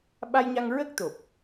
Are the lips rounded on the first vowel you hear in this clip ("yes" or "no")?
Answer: no